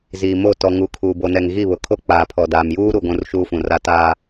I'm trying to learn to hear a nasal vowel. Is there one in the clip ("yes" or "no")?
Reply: yes